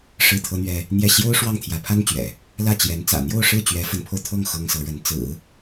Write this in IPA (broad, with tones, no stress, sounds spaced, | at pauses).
ʂ ɻ̩˥˩ t̪ʰ ɤ˥ n̪ ɥ ɛ˥ | n̪ j ɛ˥˩ ɕ j o˥ ʊ̯ ʂ w ɑ˥˩ ŋ t̪ʰ j ä˧˥ pʰ a˥ n t͡ɕ ɥ ɛ̰˨˩˦ | l ä˥˩ t͡ɕ j ɛ˧˥ n t͡s ä̰˨˩ n̪ j o˥˧ ʊ̯ ʂ ɻ̩˥˩ t͡ɕ ɥ ɛ˧˥ f ə˧˥ n pʰ o˧ ʊ̯ t̪ʰ ɤ˥˩ ŋ x ɤ˥ ŋ s ɤ˧˥ ɻ ə˧˥ n t͡s ɹ̩˨˩˦